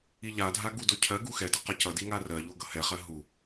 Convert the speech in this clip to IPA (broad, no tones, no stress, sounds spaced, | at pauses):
i ʎ a dʱ a ɡ u d o cʰ ɜ ɡ u x ɛ d ʌ q ʌ c ʌ d i ŋ a r ɜ ʎ o ɡ ʌ h ɛ χ ɜ ɦ u